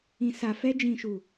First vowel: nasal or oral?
nasal